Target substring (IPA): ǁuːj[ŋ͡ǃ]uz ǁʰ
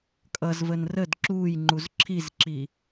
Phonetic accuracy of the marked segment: correct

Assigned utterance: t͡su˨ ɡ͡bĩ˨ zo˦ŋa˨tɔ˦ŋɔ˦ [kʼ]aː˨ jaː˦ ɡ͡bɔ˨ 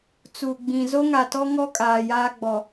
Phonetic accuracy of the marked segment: correct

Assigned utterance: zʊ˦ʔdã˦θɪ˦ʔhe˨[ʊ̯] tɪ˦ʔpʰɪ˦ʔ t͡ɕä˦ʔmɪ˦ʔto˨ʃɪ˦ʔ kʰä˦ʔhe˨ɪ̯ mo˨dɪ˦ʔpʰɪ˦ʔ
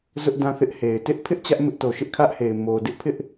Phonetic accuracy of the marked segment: incorrect: ɪ̯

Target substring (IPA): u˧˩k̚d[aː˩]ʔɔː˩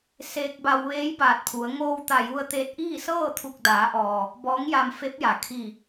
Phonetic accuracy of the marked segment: incorrect: aː˩˧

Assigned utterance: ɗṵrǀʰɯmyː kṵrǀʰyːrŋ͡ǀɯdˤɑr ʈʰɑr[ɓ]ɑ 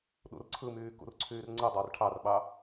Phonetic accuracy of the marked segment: correct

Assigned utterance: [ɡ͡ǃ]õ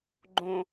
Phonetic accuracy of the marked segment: correct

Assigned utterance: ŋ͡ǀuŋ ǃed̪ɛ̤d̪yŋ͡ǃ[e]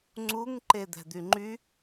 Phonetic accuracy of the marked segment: incorrect: y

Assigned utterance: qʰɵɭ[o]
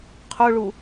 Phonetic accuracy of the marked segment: incorrect: u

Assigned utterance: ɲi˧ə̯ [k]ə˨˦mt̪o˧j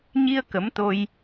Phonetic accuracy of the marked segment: correct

